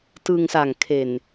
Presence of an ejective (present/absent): absent